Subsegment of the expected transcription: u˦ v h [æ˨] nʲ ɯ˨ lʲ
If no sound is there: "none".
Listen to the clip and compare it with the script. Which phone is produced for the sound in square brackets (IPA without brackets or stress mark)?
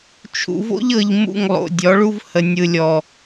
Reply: ə˨